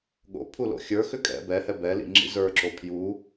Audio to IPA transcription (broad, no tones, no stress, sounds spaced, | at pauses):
ɠ o̰ pʰ u l o̰ xʲ ə˞ x ʏ kʼ ɛ̰ b ɛ h ɛ b ɛ l ḭ ŋ͡ǁ ḭ z ə˞ ǁ o pʰ j u